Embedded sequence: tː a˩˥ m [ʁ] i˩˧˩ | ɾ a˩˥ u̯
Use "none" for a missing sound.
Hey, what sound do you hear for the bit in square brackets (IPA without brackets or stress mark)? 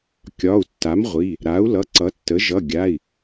ʁʷ